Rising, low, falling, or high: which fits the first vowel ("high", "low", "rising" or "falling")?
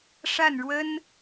falling